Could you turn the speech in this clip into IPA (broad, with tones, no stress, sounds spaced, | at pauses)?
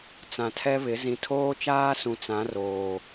t͡s ã˨ tʰ ɛ˦ β ɪ˨˦ z ĩ˨ tʰ oː˦ t͡ʃ aː˦ s ũ˨ t͡s ã˨˦ r oː˨